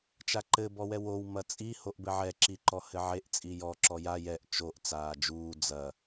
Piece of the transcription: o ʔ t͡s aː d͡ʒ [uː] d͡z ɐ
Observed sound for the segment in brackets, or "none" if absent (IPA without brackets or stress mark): uː